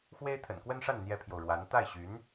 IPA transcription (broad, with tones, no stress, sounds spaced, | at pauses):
x w e˥ ɪ̯ t̪ʰ ə̰˨˩ n k w ə˥ n ʂ a˥˩ n n̪ j ɛ˥ pʰ j o˨ ʊ̯ ɻ w a˧˥ n t̪ a˥˩ ɪ̯ ɕ y˧˥ n